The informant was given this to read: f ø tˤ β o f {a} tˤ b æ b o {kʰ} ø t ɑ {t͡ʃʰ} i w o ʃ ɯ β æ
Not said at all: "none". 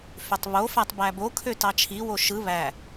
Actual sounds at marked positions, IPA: æ, kʰ, t͡ʃʰ

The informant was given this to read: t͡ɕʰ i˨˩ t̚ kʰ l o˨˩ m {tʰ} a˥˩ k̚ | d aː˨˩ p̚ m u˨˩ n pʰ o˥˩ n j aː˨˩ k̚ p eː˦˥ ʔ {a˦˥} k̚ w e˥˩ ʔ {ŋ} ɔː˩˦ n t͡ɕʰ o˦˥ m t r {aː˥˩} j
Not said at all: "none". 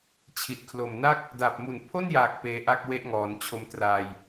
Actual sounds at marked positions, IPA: n, a˥˩, ŋ, aː˧

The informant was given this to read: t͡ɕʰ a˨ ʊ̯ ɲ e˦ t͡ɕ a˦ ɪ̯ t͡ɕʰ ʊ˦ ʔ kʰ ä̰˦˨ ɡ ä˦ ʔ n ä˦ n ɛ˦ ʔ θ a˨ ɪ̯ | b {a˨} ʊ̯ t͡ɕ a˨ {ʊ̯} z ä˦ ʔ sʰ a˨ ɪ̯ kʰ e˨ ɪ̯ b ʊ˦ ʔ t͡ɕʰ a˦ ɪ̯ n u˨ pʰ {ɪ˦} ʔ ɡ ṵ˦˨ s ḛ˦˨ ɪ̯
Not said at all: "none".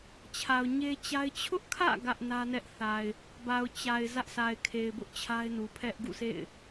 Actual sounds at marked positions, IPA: a˨, ɪ̯, ɛ˦

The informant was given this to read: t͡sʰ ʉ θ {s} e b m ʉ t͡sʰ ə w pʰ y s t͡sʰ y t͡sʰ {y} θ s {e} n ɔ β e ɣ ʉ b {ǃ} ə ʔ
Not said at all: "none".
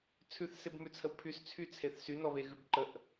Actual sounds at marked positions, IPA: s, e, y, ǃ

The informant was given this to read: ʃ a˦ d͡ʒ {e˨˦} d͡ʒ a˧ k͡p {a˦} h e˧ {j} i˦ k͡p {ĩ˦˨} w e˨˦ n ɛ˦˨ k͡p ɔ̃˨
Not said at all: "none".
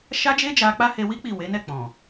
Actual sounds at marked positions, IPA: e˦, a˦, w, i˦˨

